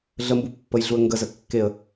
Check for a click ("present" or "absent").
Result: absent